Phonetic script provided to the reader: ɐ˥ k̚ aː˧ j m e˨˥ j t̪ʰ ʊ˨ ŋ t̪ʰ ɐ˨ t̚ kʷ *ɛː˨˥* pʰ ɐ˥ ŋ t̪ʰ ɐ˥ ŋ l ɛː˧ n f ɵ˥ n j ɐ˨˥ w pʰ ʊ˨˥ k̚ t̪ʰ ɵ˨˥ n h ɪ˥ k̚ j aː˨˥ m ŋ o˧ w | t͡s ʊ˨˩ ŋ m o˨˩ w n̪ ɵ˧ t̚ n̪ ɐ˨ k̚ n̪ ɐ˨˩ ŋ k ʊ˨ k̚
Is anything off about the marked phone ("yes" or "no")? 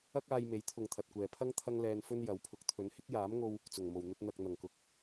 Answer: yes